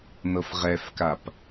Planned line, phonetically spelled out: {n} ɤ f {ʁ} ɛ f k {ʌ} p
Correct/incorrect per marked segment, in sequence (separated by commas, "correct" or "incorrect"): correct, correct, incorrect